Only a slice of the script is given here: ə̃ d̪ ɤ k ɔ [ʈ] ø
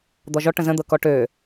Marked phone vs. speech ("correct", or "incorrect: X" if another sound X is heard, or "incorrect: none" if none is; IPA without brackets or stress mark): correct